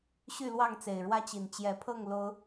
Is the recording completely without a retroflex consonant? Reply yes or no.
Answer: no